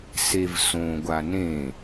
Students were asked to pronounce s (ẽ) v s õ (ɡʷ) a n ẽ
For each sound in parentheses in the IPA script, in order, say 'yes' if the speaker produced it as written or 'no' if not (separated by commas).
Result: no, yes